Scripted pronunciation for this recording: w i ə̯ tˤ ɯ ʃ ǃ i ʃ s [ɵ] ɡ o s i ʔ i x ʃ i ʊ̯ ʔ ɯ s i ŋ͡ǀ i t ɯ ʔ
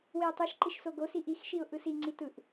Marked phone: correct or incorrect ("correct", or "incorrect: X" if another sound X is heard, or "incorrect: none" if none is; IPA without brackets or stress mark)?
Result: incorrect: o